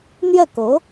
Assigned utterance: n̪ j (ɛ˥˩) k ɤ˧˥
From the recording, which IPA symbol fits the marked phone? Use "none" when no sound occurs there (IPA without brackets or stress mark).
ɛ˥˩